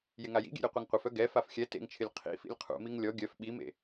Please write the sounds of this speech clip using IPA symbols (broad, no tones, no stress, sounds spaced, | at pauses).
j ɪ ŋ a j ḭ ɡʲ ḛ ɾʲ œ qʷ e ŋ qʷ ɪ f œ ɡ ɛ f a f xʲ ɛ t ḛ ŋ t͡ʃʰ ɪ lʲ qʰ ḭ f ḭ lʲ qʰ ṵ m i ŋ lʲ ɔ ɡʲ œ f ɓ i m ḛ